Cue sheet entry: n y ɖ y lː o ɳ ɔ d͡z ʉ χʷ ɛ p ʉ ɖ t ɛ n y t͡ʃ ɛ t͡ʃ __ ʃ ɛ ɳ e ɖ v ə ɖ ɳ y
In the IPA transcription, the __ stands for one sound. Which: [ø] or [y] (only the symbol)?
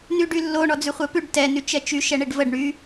y